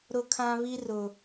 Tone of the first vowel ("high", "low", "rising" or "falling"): high